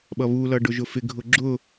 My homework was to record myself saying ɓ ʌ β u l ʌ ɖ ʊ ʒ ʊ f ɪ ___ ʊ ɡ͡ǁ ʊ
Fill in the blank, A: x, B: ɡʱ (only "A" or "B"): B